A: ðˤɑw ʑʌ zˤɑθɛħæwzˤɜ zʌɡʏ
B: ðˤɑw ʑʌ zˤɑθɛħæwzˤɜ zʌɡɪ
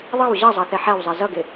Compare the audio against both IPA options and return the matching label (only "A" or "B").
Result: B